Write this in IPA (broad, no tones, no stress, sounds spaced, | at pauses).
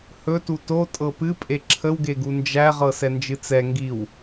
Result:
h ɵ t u t o tʼ ɤ p ɨ pʼ e ǁʰ ə w ɡ e ɡ u n d͡ʒ æ ʁ ɤ s ɛ n d͡ʒ ɨ t͡s ɛ ŋ ɡ i w